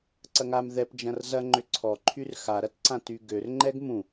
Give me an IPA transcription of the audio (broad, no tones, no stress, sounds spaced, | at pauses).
ǀ ɐ ŋ a m ð ɛ p d͡ʒ ɐ̃ r z ɐ ŋ͡ǃ ʏ ǀʰ ɔ ǃʰ y r x a ɾ ɐ t ǀ ã t y ɡ ø r ŋ͡ǃ ɛ ɡ m ũ